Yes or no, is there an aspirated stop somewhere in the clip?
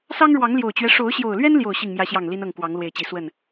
no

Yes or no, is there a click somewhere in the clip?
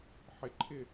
yes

